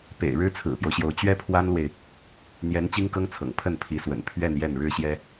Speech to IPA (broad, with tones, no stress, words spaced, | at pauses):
pḛ˨˩ɪ̯ ɻɻ̩˥t͡sʰɹ̩˨˩pjo˦ʊ̯ɕjo˧˥ʊ̯ t͡ɕɥɛ˥pʰwa˥nlwe˨ɪ̯ | n̪jɛ˧˥n t͡ɕi˥ŋkɤ˥ŋt͡sʰɤ̰˨˩ŋ pʰə˥˩npʰi˧˥swə̰˨˩n pʰɥɛ˥˧n jɛ˥˩nɻɻ̩˥ɕjɛ˥